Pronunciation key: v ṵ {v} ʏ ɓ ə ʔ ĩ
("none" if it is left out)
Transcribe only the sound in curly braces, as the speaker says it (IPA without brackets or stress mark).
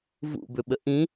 b